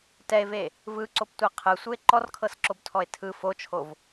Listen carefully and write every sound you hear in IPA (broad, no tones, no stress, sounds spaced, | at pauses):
t ɛ e̯ v e | v ɯ ǀ o p tʷ ɛ qʰ ɯ sʷ ɯ e̯ ǃ ɔ r kʰ ɤ s ǁ o b tʰ ɔ e̯ tʰ ɯ f o t͡ʃʰ o v